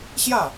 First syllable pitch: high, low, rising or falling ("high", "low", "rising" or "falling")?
falling